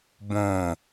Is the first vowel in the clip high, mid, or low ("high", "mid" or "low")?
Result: mid